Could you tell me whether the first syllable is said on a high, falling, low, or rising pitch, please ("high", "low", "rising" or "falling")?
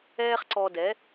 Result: high